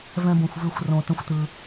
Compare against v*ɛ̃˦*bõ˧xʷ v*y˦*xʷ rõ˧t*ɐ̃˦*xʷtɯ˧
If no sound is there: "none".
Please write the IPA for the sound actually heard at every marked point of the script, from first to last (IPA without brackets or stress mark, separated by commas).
ɛ̃˦, y˦, ə̃˦